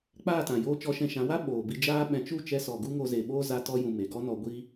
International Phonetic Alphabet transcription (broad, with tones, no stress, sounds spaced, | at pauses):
k͡p aː˦˨ t ã˨ j oː˧ t͡ʃ ɔ˧ ʃ ɛ̃˧ ʃ ã˨˦ w a˦ ɓ oː˨ b i˧ d͡ʒ aː˧ ɓ ɛ̃˨ t͡ʃ u˦˨ t͡ʃ ɛ˧ s ɔ˨ ɡ u˦ ŋ o˧ z e˨ ɓ oː˦ z a˧ t ɔ˧ j ũ˨ m e˨ ɡ ɔ˦ n ɔ˧ ɡʷ iː˦